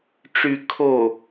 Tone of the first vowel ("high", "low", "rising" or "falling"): low